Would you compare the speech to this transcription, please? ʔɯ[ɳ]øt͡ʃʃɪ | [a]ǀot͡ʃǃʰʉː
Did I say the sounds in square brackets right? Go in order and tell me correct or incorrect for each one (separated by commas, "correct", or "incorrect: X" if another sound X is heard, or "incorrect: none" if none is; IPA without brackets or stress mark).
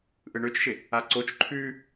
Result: correct, correct